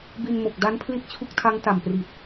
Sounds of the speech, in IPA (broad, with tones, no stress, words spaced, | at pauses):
bi˧nmo˨˩k̚ da˦˥npʰli˦˥t̚ t͡ɕʰu˦˥k̚tʰa˦˥ŋ ta˨˩mpri˨˩t̚